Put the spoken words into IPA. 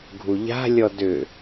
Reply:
ɡʱ u ʎ a̤ lʲ ɔ d ʏ

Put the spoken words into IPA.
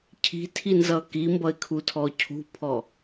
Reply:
cʰ i̤ tʰ i n z ʌ k i m b ʌ ɪ̯ kʰ u tʰ ɔ cʰ ṳ pʰ ɔ

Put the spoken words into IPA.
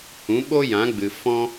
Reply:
h ũ˨˦ ɓ o˦ j ã˨˦ ɡ͡b ɨ˨ f ɔ̃˦

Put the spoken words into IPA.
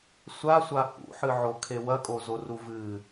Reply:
sʷ a sʷ a h ṵ ħ ɨ ʕ o kʰ e w ɐ kʼ o z o r u v ɨ

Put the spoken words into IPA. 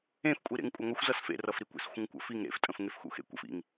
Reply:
ẽ f kʷʼ i ɾ ḛ ŋ kʷʼ ɐ ŋʷ ʌ xʷ z ʌ s f ḛ r ʌ f ɾ i kʷ ḛ s xʷ ə̃ ŋ kʷ ə̰ f i ŋ ɾ ḛ f tʼ ə̃ f ŋ e f x ṵ x ḛ kʷ ə̰ f ḭ ŋ

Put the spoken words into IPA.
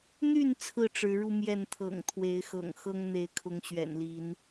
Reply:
n̪ y˥˨ n t͡sʰ ɹ̩˥˨ ʈ͡ʂ ɻ̩˨˦ ɻ u˧ m j ɛ˥˨ n t̪ʰ ɤ̰˨˩ ŋ t̪ʰ w e˨˦ ɪ̯ x ɤ̰˨˩ ŋ x ɤ˦ ŋ n̪ e˨˦ ɪ̯ kʰ ʊ˨˦ ŋ ɕ ɥ ɛ̰˨˩ n l i˨˦ n

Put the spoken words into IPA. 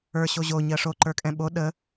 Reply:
ə˞ ɕ o ʑ o ɲ ɜ ʂ o ǃ ə˞ kʼ ɛ̃ ɓ o ɗ ə

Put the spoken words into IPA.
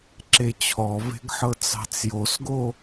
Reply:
ǁ e t͡ɕʰ ɔ v e̤ ɡ ħ ɤ t͡s ɑ̤ t͡s j o s ɡ o

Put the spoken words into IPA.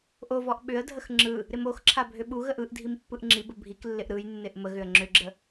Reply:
ʔ o v ɔ ʔ ɓ ʏ ə̯ dʱ ə x ŋ͡ǁ ɯ | ɾ ɪ m o x ǁʰ a bʱ ʏ ɓ u ɣ ə ʔ ɯ ʔ dʱ i m pː ɯ ʔ ŋ͡ǁ i b ə bʱ i k lː ɪ ʔ ɾ ɯ j nː ɪ ʔ m ə ɣ ʏ ə̯ ŋ͡ǁ ʏ ɡ͡ǁ ə

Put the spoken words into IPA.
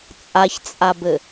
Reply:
t͡sʼ a ç t͡sʼ a b ɘ

